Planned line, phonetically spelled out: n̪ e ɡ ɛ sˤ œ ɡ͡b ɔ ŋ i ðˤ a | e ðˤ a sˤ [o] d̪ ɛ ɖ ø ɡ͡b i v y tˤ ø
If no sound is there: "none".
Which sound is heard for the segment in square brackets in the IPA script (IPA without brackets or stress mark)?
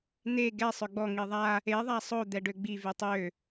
o